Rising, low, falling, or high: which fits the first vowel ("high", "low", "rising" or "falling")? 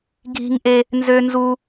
high